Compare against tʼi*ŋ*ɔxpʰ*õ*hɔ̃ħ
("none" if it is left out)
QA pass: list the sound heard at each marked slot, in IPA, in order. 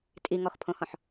ŋ, õ

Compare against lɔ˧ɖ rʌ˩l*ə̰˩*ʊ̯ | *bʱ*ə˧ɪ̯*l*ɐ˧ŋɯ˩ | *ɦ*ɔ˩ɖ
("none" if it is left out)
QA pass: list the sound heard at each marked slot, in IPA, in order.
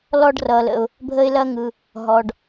ə̰˩, bʱ, l, ɦ

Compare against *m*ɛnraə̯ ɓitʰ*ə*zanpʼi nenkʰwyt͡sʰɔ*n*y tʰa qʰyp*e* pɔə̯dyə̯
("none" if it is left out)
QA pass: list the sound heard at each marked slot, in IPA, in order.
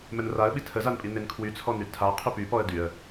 m, ə, n, y

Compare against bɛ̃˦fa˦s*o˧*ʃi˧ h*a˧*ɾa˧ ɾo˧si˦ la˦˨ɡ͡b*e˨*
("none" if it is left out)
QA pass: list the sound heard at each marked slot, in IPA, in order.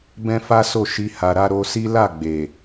o˦˨, a˨, e˨

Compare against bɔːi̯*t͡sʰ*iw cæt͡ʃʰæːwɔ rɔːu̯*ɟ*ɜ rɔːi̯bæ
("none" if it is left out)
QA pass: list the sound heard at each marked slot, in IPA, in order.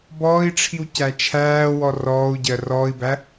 ʈ͡ʂʰ, ɟ

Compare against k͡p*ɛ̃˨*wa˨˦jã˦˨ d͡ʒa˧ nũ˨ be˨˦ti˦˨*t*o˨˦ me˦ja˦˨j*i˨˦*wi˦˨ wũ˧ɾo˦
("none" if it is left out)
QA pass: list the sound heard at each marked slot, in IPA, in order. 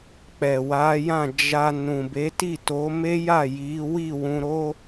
ɛ˨, t, i˨˦

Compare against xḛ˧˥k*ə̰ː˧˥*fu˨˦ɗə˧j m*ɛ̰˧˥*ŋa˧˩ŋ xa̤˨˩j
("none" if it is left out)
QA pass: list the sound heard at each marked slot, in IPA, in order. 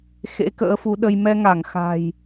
ə̰ː˧˥, ɛ˧

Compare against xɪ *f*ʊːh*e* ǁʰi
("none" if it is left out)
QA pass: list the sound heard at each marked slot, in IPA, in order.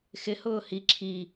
h, i

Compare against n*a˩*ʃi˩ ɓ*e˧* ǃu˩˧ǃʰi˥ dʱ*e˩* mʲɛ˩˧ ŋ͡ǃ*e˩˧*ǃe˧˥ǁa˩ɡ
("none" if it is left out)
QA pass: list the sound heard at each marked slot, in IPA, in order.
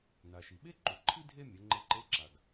a˩, e˥, e˥, e˧

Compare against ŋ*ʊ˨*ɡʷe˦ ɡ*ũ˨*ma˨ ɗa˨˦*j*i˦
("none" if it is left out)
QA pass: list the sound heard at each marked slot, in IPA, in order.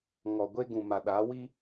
ɔ˨, ũ˨, w

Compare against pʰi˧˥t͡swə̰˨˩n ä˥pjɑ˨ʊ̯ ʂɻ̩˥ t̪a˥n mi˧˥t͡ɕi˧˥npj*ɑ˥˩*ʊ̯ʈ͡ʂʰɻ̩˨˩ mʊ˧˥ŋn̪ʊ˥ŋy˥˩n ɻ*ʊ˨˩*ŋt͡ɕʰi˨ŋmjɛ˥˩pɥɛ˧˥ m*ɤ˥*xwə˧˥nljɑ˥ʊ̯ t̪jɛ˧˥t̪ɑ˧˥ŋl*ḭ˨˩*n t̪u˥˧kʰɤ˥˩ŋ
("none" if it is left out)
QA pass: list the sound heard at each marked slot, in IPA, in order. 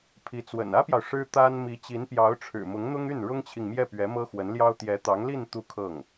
ɑ˧˥, ʊ˥, ɤ˥, i˥˧

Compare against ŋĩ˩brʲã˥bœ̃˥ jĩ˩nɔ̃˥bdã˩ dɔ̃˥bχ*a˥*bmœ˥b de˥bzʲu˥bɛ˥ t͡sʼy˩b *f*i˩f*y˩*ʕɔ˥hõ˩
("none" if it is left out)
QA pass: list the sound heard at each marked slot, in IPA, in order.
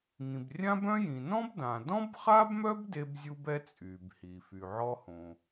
a˥, h, y˩

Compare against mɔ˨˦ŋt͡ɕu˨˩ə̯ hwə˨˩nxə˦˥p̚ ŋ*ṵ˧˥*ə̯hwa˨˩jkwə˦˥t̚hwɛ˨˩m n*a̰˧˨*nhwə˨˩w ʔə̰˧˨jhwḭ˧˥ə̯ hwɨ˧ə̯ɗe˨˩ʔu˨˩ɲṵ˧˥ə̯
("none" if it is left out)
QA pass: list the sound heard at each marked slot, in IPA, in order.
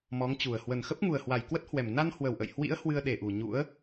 u˨˩, a˧

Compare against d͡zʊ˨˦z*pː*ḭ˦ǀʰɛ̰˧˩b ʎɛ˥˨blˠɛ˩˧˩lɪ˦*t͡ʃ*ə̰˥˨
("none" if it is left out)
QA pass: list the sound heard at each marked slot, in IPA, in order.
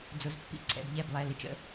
pː, t͡ʃ

